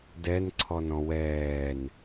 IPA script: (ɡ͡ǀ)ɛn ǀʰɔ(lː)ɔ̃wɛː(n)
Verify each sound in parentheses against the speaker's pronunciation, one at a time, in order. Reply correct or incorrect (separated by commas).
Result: incorrect, incorrect, correct